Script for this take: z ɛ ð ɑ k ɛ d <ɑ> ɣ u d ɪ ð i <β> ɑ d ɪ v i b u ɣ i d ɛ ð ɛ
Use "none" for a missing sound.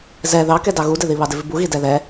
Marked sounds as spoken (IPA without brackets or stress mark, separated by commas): ɑ, β